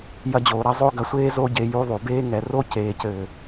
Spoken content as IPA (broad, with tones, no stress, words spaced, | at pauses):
jɐ˧d͡ʑoː˨ ɾɐ˧ zˤo˦ɡɐ˧sʷeː˦ zo˦ɟe˧ ju˧ðˤu˨beː˦ ŋɛ˨ro˦ ceː˨cɘː˨